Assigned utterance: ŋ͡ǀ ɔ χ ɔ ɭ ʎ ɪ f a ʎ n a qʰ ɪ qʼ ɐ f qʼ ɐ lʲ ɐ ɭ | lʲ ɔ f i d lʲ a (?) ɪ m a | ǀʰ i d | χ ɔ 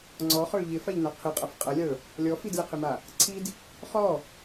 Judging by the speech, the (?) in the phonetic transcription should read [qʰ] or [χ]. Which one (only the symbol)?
qʰ